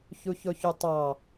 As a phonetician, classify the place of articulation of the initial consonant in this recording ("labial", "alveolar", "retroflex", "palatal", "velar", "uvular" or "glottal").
palatal